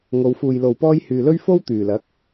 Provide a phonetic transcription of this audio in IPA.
ŋo˨˧wfuː˨jlo˨wpɔː˥j hyː˨lɵ˥ɥ fo˥w t̪yː˨˩lɐ˨˥k̚

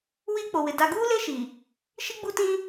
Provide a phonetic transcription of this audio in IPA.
wiː˦k͡po˨wɪ˨ da˨ɡuː˦le˦ ʃi˨ | ʃi˦ɡ͡bu˦tĩ˦

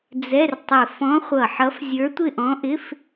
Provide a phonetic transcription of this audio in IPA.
d͡zɛ˧˥˧rtˤɪ˧˩ fɔ̃˧˥χʷʌ˧˩ħʌ˧˥f zʲə˞˧˥tʷɪ˥˧ʔɔ̃˧˥ʔɪ˧˥˧f

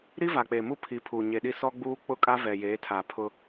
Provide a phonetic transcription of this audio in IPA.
ɾi˦va˨k͡pe˨mu˦ pʰi˨˦pʰuː˨ ɲe˨ɗi˦ sɔ˦ɡ͡buː˦ k͡pʊ˦kʼa˦ vɛ˨jeː˨˦ tʰa˨pʰʊ˦

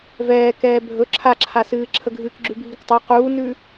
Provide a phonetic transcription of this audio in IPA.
vɛːkɛː bʱɵ ǁʰaǁʰasɨː ǁʰəɡʱɨːkɡ͡ǁʉbʱik tˤa quːnʉ

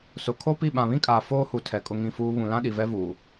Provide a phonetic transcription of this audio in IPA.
sʊ˨ kʰo˦pi˦˨ ɓã˨βĩ˦kʼaː˨ foː˦hu˨ tʰɛ˨kʼʊ˦ŋĩ˦˨fuː˦ βũ˨lã˦ɗi˨ vɛ˦vuː˨

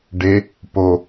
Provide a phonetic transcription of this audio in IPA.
ɖe | po

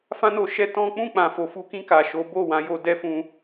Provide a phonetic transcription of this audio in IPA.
fã˦no˧ʃɛ˦ tɔ̃˦ k͡pũ˦˨k͡pã˨fo˨ fu˧kĩ˧ ka˨ ʃo˨˦bo˦˨wã˨˦ jo˧dɛ˦fũ˧

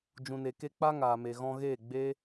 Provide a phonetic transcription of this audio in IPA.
d͡ʒũ˨ne˨ke˧ k͡pa˦ ŋaː˨me˨ɣɔ̃˧ɣeː˦˨ ɡ͡be˦

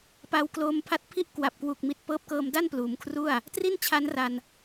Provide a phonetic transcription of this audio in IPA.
pa˧wkloː˧mpʰa˦˥t̚pʰi˥˩ʔ kwa˨˩p̚kwu˨˩k̚ mi˨˩t̚pɤː˦˥p̚kɤː˧mda˥˩n pluː˩˦mkʰru˥˩a̯ | tri˥˩nt͡ɕʰa˦˥nra˧n

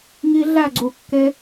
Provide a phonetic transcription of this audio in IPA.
ŋi˧ ɮæ˦˨ɡ͡ǀu˨kːe˧

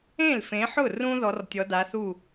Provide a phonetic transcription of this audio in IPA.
ẽ˥˩lfẽ˨˦ħʊ˥˩rũ˦ ðɔ˨˦rtʲɔ˨˦da˨˦θu˥˩

